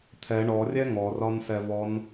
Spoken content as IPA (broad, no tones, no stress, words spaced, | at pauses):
t̪ʰɛ ɳɔrʲɛ ŋɔrɒnsɛvɔn